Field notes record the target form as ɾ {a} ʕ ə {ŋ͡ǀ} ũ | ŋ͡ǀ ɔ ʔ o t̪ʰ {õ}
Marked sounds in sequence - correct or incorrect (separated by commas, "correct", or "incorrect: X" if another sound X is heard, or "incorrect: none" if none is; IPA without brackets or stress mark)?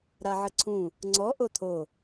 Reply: correct, incorrect: ǀʰ, incorrect: o